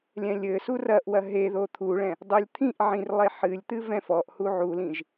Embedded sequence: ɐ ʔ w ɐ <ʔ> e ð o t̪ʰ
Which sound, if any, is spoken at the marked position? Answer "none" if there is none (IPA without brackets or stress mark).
ɦ